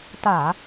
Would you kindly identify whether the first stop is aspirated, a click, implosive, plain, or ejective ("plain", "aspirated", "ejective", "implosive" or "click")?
plain